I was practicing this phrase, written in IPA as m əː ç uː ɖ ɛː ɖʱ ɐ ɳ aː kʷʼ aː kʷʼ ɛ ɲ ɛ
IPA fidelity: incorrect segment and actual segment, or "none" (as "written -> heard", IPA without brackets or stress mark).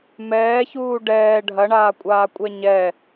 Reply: əː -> ɛː